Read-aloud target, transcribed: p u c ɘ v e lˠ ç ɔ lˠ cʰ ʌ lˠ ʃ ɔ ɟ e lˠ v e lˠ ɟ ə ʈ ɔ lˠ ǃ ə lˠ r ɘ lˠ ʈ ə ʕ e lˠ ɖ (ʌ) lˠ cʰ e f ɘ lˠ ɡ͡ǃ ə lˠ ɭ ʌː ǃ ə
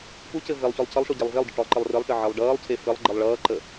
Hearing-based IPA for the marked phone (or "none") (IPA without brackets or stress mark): ʌː